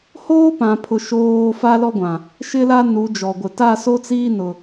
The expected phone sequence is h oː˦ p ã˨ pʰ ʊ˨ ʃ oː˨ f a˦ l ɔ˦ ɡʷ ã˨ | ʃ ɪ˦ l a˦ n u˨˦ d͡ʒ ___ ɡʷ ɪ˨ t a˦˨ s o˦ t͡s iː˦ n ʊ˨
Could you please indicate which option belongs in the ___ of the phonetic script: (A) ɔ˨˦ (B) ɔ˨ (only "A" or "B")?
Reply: B